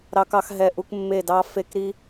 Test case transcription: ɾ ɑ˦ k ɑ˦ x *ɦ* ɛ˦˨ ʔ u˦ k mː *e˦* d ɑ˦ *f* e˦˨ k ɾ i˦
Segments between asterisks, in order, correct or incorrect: correct, incorrect: e˦˨, correct

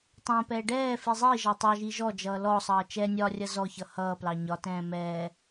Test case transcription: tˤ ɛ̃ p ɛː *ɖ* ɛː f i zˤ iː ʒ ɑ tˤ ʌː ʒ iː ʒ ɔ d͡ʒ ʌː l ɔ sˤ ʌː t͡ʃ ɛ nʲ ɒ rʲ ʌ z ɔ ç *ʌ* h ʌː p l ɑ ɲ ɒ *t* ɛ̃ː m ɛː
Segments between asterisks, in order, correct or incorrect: correct, correct, correct

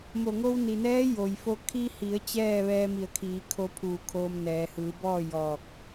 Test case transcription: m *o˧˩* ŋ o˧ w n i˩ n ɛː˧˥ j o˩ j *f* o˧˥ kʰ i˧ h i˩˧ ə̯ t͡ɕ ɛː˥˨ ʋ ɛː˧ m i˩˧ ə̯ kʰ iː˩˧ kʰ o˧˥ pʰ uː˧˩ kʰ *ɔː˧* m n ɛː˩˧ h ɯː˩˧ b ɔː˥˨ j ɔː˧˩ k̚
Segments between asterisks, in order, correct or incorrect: correct, correct, incorrect: oː˧

